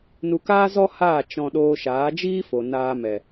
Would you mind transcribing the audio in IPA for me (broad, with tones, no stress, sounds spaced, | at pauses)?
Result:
n u˧ k aː˦ z ɔ˦ h aː˦˨ t͡ʃ ɔ̃˧ ɗ oː˧ ʃ aː˨˦ d͡ʒ iː˦ f o˨ n aː˧ m ɛ˨